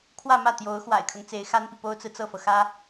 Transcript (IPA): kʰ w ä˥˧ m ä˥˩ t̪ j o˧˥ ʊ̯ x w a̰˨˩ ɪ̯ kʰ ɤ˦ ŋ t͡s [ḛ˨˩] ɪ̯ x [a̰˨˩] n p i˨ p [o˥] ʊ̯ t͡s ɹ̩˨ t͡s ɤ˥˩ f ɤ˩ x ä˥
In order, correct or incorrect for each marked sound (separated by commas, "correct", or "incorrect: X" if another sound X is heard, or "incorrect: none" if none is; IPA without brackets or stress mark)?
incorrect: e˧˥, incorrect: a˥, correct